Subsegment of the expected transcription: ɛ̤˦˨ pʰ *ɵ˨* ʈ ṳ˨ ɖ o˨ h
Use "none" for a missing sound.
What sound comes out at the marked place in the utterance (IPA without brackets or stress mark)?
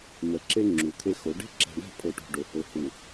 o˨